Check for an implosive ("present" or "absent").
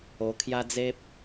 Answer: absent